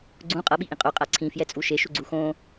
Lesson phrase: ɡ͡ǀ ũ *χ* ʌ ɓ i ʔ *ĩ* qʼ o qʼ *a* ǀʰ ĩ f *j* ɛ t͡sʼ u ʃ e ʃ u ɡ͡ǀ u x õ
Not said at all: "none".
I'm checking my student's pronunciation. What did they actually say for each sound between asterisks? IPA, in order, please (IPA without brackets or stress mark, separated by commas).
qʼ, ĩ, a, j